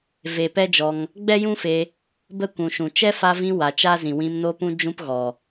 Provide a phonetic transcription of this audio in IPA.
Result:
v e˨ p ɛ˦ d͡ʒ ɔ˧ ŋ | ɡ͡b ɛ˦ j ũ˦ f e˧ | b ə˦˨ kʷ ũ˨ ʃ ũ˨ t͡ʃ ɛ˦ f a˧ v ĩ˧ w a˨ t͡ʃ a˦ z ĩ˨ w ĩ˧ m n o˧ p ũ˧ d͡ʒ ũ˦ p ɣ ɔ˨

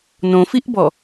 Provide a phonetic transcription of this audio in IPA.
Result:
n õ f i ʔ b ɔ

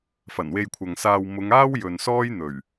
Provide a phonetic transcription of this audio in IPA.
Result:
f ɐ˨˩ n w e˧ j kʷʰ ɐ˨ ŋ s aː˧ w m ʊ˨˧ ŋ aː˥ w j ɵ˨ n s ɔː˥ j n̪ ɵ˨˩ ɥ

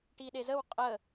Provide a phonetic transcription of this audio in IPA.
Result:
ʈ i ɗ e z ə w qʼ ə

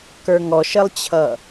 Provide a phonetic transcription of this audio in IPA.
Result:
k ə˞ ŋ ɔ ʃ ə lˠ t͡ɕʰ ʌ

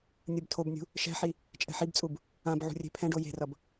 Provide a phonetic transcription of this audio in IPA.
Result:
nʲ ɯ b tʰ o b nʲ ṳ | ʃ ɛ̤ ħ i | t͡ʃʼ ɛ̤ ħ i b t͡sʼ u b | ã b ʕ ṳ rʲ e̤ pʰ ɛ̃ ɖ o j e̤ r ʌ b

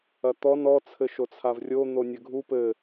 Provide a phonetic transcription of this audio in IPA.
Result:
ɐ t̪ ɔ n ɔ t͡sʰ ɘ ʃ o t͡sʰ a v rʲ o n̪ o nʲ ɘ ɡʱ u p ɘ

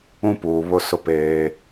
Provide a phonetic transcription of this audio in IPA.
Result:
ũ˦ p uː˨ β ʊ˦ s ʊ˦ p eː˦

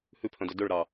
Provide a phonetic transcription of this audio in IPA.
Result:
h ʉ pʰ œ̃ d ɵ d ɵ ɭ ɾ ɑ

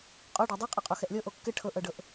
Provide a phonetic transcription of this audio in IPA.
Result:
qʼ ɔ ɖ ɑ dˤ ɘ qʼ ɤ qʼ o x ɛ ʔ lʲ ɤ ʔ o kː ɘ ʈʰ ɤ ʔ ɤ ɖ ɤ ʔ

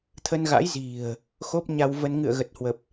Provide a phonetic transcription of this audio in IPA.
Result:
t̪ʰ ə˧ n ɣ a̰˧˥ j z i̤˨˩ ə̯ | x o˦˥ p̚ ɲ a˧ w v ə˧ n ŋ ɨ̰˧˨ ə̯ ɣ ə˨˩ t̚ h w ə˨˩ p̚

